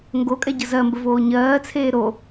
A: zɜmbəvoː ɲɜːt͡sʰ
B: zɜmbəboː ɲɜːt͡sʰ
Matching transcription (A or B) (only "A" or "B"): A